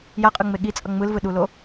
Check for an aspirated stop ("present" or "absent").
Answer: absent